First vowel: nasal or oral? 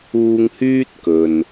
oral